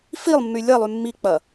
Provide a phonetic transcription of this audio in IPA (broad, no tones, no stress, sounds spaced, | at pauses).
f i lˠ mː y lʲ ɐ lˠ y mː i k͡p ɐ